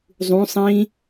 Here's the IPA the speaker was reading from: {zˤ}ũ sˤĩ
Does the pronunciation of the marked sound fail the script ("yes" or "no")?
no